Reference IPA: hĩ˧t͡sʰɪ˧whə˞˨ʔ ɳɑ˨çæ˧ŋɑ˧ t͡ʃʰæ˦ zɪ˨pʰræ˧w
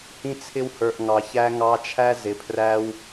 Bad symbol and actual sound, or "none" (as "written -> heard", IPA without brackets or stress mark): ɳ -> ŋ